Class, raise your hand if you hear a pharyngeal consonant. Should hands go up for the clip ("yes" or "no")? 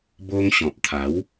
no